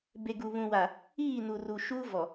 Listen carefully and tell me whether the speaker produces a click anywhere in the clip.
no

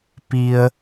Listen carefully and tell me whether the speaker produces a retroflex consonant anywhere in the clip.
no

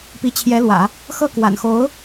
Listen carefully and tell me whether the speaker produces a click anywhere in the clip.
no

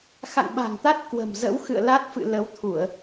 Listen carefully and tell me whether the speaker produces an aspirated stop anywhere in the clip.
yes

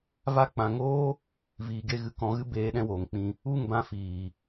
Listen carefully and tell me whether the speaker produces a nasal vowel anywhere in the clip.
yes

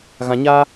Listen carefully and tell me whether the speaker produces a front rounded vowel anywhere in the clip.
no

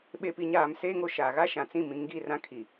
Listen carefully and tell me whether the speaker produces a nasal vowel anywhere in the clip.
yes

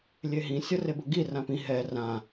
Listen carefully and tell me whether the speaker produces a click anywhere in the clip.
no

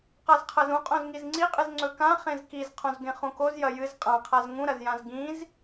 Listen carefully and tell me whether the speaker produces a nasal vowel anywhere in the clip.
yes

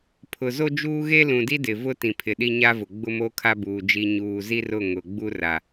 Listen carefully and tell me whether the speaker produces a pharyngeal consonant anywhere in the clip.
no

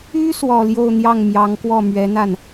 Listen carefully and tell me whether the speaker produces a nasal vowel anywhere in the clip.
no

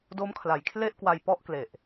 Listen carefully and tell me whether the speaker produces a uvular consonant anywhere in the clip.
no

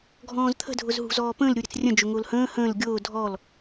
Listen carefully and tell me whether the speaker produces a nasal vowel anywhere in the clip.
yes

